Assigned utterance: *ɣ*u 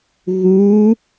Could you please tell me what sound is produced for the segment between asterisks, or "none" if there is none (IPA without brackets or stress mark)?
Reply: ɣ